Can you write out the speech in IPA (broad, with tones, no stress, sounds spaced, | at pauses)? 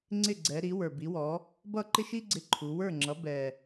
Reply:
ŋ͡ǀ ɪ˥˩ ɡ͡ǀ ɛ˩˧ ɾ i˩˥ w ə˞˨˩ b i˩˥ w ɔ˩˥ | b ʌ˥˩ ǃ ɪ˥ ʃ i˥ ɡ͡ǀ ɪ˧ ǃʰ u˩˧ w ə˞˥˩ ŋ͡ǁ ʌ˩˥ b ɛ˨˩